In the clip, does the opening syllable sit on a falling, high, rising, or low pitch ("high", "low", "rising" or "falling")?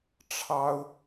high